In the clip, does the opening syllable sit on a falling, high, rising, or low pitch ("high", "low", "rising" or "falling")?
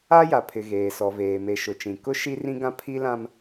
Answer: high